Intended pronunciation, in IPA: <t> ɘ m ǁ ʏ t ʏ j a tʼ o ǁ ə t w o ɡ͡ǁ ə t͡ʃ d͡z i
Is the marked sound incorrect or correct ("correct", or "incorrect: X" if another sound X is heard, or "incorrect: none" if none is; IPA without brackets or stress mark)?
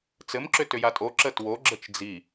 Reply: incorrect: t͡s